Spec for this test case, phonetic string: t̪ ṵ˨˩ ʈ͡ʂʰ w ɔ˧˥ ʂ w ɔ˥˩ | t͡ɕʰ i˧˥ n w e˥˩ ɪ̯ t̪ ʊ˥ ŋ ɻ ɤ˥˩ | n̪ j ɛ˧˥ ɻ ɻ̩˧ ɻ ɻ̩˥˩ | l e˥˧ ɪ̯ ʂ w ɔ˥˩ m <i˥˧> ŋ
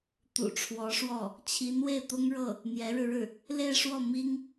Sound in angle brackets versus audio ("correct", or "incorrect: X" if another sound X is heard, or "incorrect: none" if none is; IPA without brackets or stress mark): incorrect: i˥